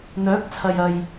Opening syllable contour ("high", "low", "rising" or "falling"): rising